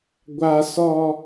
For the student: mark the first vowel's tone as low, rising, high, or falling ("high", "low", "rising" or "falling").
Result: high